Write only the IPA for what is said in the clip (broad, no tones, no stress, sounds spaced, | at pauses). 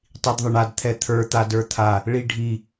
tˤ i d ðˤ ə ɳ a d t̪ʰ ɛ t̪ʰ ə˞ t̪ a d ə˞ t̪ʰ a | ɭ i ɖʱ i